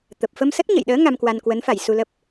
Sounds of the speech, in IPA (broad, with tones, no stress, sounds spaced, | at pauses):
t̪ ə˨˩ p̚ f ə˧ m s ə˦˥ t̚ ɲ ə̰˧˨ j ɗ əː˨˦ ŋ a˧ m k w a˧ n k w ə˨˦ n f a˧˩ j s u˧ l ə˦˥ p̚